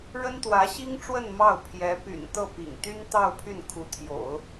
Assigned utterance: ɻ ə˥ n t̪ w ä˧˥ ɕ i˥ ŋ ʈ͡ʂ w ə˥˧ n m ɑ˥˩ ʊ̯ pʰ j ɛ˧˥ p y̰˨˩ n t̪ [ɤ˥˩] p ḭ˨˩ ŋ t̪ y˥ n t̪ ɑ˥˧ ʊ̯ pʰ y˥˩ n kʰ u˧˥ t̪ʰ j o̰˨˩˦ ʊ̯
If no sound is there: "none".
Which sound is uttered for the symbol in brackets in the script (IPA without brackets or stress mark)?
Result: ɤ˥˩